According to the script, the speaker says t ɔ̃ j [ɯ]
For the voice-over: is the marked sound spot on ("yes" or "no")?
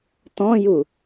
no